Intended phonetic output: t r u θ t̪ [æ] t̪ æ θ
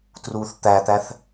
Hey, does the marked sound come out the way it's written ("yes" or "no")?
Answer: yes